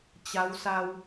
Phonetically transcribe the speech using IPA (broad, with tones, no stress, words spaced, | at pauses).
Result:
t͡ɕa˧˥wsa˧w